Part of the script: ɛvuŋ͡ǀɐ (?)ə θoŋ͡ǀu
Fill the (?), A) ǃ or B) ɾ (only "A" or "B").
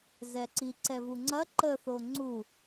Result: A